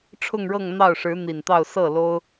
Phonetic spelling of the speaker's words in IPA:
ʈ͡ʂʰ ʊ˥˧ ŋ ɻ ɤ˥˧ ŋ n̪ ɑ˥˩ ʊ̯ ʂ ɻ̩˧˥ n̪ i˨˩ n t̪ ɑ˥˧ ʊ̯ s ɤ˥˩ l o˥ ʊ̯

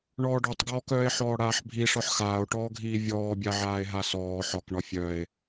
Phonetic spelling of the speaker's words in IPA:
ɳ ɔː ɖ ɔ tˤ ɡ ɔː k œː e̯ ħ ɔː ɽ aː ħ bʱ i ʂ ɒ ħ x aː o̯ ʈ ɔː ɡʱ iː vʲ ɔː bʲ a ʕ aː e̯ ɦ a s ɔː ħ ɒ k ɳ ɒ fʲ œ e̯

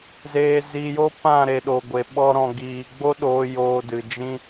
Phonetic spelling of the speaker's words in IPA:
z eː˨ z i˨ j o˦ p ã˦˨ ɾ e˨ ɗ o˨ ɡʷ e˨ ɓ ɔ˧ ɾ ɔ̃˨ ɡ iː˨ ɡ͡b o˦ ɗ oː˧ j oː˧ d ɨ˨ d͡ʒ ĩ˦

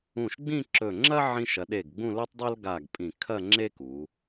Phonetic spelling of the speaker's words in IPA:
ũ˧˩ ʃ ɡ͡b ĩ˥˧ ǁ ɵ˧˩ ŋ͡ǁ ɐ˥ ʕ ĩ˧ ʃ ɐ˩˧ ɗ e˧˩ ɡ ɡ͡b ũ˥˧ l o˥ tˤ dˤ o˥ l ɡ a˧˩ ɡ pʼ ĩ˧˩ kʰ ɐ˥˧ ŋ͡ǁ e˥ k u˩˧

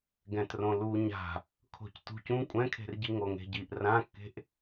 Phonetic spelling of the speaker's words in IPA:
ɡ ɛ̃ t r õ l u ɲ a̤ | kʰ o̤ c t ṳ c ũ kʷʼ ɛ̃ kʰ e̤ r ɟ i ŋ o ŋ e̤ ɟ i ʔ r ã kː e̤ ʔ

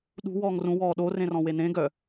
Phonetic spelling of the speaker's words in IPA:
ɗ ṳ w ɔː ŋ r ũ w ɔː ɗ o r ẽ r ɔ̃ w e n ẽ ɡ œ

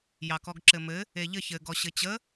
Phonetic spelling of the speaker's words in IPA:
j ɑ k ɔ ɡ ǁ ɘ m ɘ | e ʎ ɘ ç ɘ ɡ ɔ ɕ ɘ t͡ɕ ə

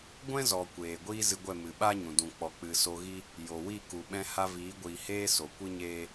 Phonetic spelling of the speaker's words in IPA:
ɡʷ ɛ̃˦ z ɔ˨ kʷ eː˨ ɡʷ iː˦ z ɨ˧ ɡʷ ɛ˦˨ m ɨ˨ ɓ a˦ ɲ ũ˨ d ũ˨ k͡p ɔ˨ k͡p ɨ˨ s o˧ ɣ i˦ | j o˨ w i˦˨ k u˨ ɓ ɛ̃˧ h a˧ v iː˨˦ ɡʷ iː˨ h eː˦ s o˨ kʷ ɨ˦ ɲ eː˦

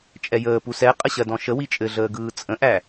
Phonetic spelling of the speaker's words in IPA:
t͡ʃʼ ɛ j əː p u s ɛ qʼ ə ɕ ɜ d ɔ̃ ʃ ə w i t͡ʃʼ ɘ ɮ əː ɡ ɯː t͡sʼ ə̃ ʔ æ

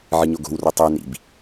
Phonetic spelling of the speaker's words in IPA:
ʕ ɨ ɲ o ɡ o̤ w r ɵ tˤ ʉ n ḭ b

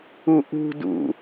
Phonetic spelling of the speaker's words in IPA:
u ʔ ṳ d ṵ

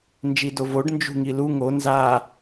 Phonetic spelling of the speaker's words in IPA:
n d͡ʒ i d o v o ɖ n d͡ʒ ṳ ŋ i l u ŋ o n z a

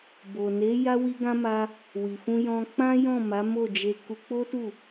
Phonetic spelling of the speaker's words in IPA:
b o˨ n e˨˦ j a˦ w i˦ ɡ ã˦ m a˦ | w i˨ f ũ˧ j ɔ̃˧ k͡p ã˦ j ɔ̃˦˨ m a˨˦ m o˦˨ d͡ʒ e˧ k u˧ k͡p o˦ t u˦˨

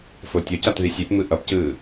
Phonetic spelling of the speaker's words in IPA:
f o tʲ o c a t ð i sʲ e p m ɯ ʔ ʌ p c ɯː

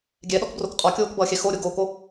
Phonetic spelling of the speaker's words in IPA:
ɡʲ ɛ ɗ ɔ k b r o k qʼ ɔ kʲ oː k b ʌː xʲ ɛ x o ɾʲ o ɡ oː k o

